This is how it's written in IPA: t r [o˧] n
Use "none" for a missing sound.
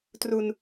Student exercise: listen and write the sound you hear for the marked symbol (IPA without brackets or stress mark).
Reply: u˧